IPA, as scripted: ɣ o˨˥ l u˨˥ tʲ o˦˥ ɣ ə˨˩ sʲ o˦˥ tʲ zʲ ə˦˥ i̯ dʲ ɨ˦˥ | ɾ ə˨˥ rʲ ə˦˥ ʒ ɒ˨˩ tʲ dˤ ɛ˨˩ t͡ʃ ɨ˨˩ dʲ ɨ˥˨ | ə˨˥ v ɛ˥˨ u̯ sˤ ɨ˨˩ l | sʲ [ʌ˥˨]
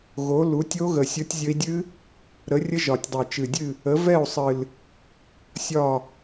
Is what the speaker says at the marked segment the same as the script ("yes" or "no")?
no